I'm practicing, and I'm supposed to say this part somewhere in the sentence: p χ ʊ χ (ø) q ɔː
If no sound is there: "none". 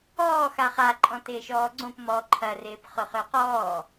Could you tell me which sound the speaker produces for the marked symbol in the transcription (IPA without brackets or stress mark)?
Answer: ø